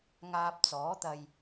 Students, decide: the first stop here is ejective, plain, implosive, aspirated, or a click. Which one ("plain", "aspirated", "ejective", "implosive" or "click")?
plain